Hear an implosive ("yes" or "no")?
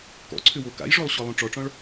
no